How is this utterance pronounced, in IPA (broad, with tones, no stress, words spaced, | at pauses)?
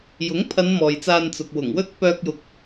jʊ˨˥ŋpʰɐ˨˧n mɔː˨jt͡saː˧n t͡sʊ˨k̚wʊ˨˩ŋwɵ˥t̚ pœː˧k̚jʊ˨k̚